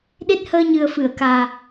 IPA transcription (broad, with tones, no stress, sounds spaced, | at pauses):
ɗ e˦˥ t̚ h əː˧ ɲ ɨ˨˩ ə̯ f ɨ˨˩˨ ə̯ k aː˨˩